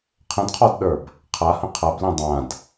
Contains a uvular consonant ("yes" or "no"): yes